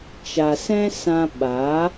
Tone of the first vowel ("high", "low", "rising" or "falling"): low